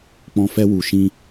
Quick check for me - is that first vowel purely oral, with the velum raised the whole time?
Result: no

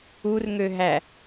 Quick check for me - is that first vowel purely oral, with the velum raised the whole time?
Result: yes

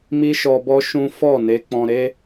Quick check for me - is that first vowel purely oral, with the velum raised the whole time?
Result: yes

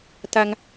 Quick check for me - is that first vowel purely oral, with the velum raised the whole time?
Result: yes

